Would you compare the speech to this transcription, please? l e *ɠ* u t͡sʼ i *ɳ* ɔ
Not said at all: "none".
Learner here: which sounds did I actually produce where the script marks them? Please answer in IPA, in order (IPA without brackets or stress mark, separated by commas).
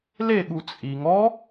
ɠ, ŋ